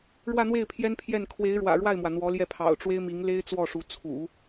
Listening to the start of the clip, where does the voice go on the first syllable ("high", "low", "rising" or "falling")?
falling